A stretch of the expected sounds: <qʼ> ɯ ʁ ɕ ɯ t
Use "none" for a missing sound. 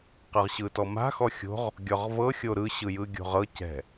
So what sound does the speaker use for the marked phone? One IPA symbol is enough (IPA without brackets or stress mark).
q